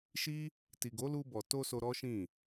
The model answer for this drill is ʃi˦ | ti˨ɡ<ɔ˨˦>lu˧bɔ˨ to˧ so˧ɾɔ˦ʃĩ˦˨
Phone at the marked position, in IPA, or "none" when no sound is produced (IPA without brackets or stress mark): o˨˦